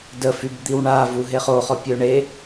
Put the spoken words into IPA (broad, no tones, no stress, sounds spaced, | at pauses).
d ə f y b d̪ i w ɳ a v u ɦ e χ o χ ɔ pʲ ø ɳ e